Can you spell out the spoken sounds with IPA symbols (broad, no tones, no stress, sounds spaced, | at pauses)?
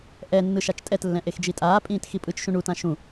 ʔ ɛ nː ɯ ʃ a t͡ʃ tʼ ɛ t lː ɛ̃ ʔ e x d͡ʒ i tʼ aː pʼ ĩː t x i pʼ ɯ t͡ʃ ʃ ũ ɳ u t ã ʃ ũ